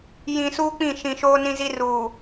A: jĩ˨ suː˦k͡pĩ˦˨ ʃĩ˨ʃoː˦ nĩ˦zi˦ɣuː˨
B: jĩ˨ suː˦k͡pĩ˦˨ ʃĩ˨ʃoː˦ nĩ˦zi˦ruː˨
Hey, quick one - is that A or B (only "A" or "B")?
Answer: B